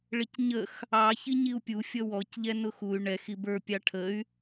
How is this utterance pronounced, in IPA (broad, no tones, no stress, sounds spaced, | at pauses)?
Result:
ɭ ɪ c ɲ ə x | ɑ ç i ɲ i u̯ pʲ u fʲ ʌ w ɔ c ʎ ɛ n ʊ x u y̯ ɳ ɛ x i b ə˞ pʲ ɑ ʈʰ ə y̯